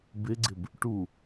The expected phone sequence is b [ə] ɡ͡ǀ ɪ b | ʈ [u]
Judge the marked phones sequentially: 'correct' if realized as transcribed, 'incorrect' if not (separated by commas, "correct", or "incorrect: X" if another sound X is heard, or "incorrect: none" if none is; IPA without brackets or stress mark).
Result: incorrect: ɪ, correct